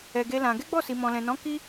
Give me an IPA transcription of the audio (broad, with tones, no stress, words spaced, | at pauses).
ɛ˧ɡe˦lã˧ ɡɛ˦ɡ͡bɔ˦˨si˨ mɔ̃˨lɛ̃˨nɔ̃˨˦ ki˦